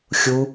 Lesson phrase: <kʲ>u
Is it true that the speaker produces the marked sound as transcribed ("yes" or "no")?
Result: no